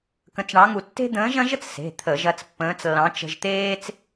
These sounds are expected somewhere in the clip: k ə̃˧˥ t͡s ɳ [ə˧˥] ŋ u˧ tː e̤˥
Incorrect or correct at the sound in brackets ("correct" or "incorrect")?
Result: incorrect